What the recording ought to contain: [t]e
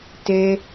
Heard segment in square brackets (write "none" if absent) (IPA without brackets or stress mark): t